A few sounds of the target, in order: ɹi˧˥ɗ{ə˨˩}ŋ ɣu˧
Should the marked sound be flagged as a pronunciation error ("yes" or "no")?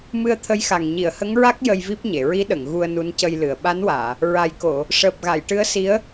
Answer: yes